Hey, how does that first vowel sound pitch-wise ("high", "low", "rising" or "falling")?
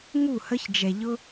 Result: falling